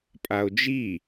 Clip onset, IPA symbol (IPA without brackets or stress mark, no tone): pʼ